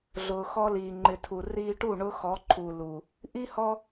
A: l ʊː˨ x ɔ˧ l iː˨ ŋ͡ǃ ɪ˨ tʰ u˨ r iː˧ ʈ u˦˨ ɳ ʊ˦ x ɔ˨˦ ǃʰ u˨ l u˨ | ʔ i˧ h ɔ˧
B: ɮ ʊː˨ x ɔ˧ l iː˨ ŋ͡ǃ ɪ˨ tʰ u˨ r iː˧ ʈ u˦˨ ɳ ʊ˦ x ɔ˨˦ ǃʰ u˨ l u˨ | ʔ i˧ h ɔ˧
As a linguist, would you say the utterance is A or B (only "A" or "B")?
B